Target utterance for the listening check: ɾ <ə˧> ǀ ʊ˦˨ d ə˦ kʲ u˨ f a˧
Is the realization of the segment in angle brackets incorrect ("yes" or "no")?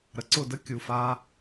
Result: yes